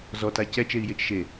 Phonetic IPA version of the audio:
z ɔ t a c ɛ t͡ʃ e i̯ j e t͡ʃ ʃ e

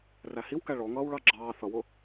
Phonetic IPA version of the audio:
r æ h i w k æ ɭ ɔ ŋ ʌː w ɭ ɑ ɡ͡ǁ ɑː θ ʌ w ʊ

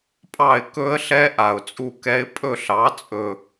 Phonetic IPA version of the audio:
pʼ ɑ˦˨ ɪ̯ k ɵ˦˥ ə̯ ɬ ɛ˦˥ ʔ a˨˩ ʊ̯ t͡sʼ u˦˨ k ɛ˦˥ ɪ̯ pʼ ɵ˦˨ ɬ ɑ˩˥ t͡sʼ ɵ˨˩

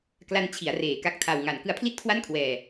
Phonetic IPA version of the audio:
k l a˧ n t͡ɕʰ i˩˦ a̯ r eː˩˦ k a˦˥ k̚ tʰ a˧ w ŋ a˩˦ n k ɯ˧ a̯ pʰ l i˥˩ t̚ kʰ w a˥˩ n kʰ w ɛː˧

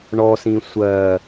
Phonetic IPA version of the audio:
ɳ ɔ s ĩ sʷ ɜ

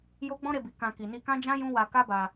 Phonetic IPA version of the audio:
j o˦ ɡ͡b ɔ̃˦ ɾ e˧ b i˨ k ã˧ k i˨ n i˧ k ã˦ d͡ʒ ã˦ j ũ˦ w a˧ k a˦ b a˧

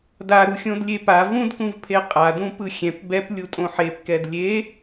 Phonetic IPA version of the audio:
d a ɾ u xʲ õ d lʲ e p a v ũ d k ũ v pʰ e qʼ a d ũ p ɯ xʲ ɛ̃ p b ɛ p lʲ u tʼ õ ħ e p k ɛ d lʲ e

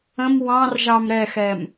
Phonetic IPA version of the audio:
ə̃ m w ɑ̃ r ʒ ɑ m ɾ ɛ x ɛ m

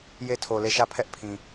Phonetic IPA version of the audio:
j e˦ tʰ o˨ l e˦˨ ʃ ä˦˨ pʰ ɛ˦ ʔ pʰ ĩ˨

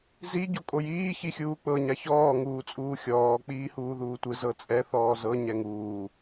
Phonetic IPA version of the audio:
z i ɟ o kʼ o j iː ç i xʲ uː k͡p ɤ ɲ a ç ɔː ŋ uː t͡sʼ uː xʲ ɔː k͡p iː h uː ð uː tʷ ɯ z ɤ t͡sʼ ɛ θ ɔː z ɤ ɲ ɛ ŋ uː

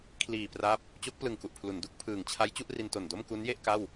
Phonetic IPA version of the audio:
kʰ l iː˨˩ p r a˦˥ p̚ | t͡ɕ o˦˥ k̚ p l ɯ˨˩ ŋ k u˨˩ ʔ pʰ l u˩˦ n d u˦˥ k̚ pʰ ɯː˨˩ ŋ t͡ɕʰ a˦˥ j t͡ɕ u˥˩ ʔ r i˧ n t o˨˩ n d o˥˩ m k u˦˥ n j e˥˩ ʔ k a˥˩ w

